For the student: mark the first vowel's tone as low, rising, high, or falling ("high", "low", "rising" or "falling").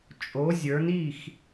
rising